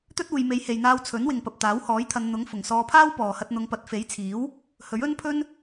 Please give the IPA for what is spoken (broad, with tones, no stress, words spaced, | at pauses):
t̪ɵ˥t̚ uː˨jme˨˧jhe˨jn̪aː˧w t͡sʰɵ˨˥nwɪ˨ŋ pɐ˨p̚t̪aː˨˥whɔː˨˥jt̪ʰɐ˨˧n n̪ʊ˨˥ŋfʊ˨˩ŋ sɔː˧pʰaː˥wpɔː˨hɐ˧t̚ n̪ʊ˨˧ŋ pɐ˨t̚fe˨˥jt͡sʰiː˨˥w | hɵ˨˥ɥɵ˥npʰɵ˥n